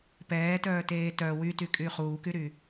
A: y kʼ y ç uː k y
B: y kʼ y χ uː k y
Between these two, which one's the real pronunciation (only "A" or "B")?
B